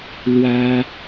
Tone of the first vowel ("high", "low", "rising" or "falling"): high